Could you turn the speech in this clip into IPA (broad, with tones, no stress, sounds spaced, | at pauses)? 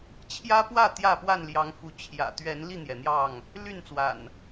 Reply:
t͡ɕʰ j ä˦ p w ä˥˨ t̪ j ä˥˨ p w a˥˨ n l j ɑ˨˦ ŋ f u˨˦ t͡ɕʰ j ä̰˨˩ t̪ ɥ ɛ˨˦ n l i˥˨ n̪ j ɛ˩ n̪ j ɑ˥˨ ŋ | l y˥˨ n t͡s w a̰˨˩ n